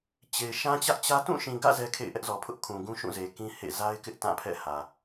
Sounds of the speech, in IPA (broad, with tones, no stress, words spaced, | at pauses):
t͡ɕe˨ɪ̯ ʃã˦t͡ɕä˦ʔt͡ɕä˦ tũ˦˨ʃĩ˨ɡä̰˦˨ zɛ˦kʰḛ˦˨ɪ̯ʔɛ˦ʔ zɔ˨pʰʊ˦ʔkʰũ˨ ɡũ˦ʃũ˦˨ze˨kĩ˦ hḛ˦˨ za˦ɪ̯kɪ˦ʔ tã˦˨pʰɛ̰˦˨ hä˨